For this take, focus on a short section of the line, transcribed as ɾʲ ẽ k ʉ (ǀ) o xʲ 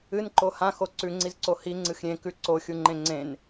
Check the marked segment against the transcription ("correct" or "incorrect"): correct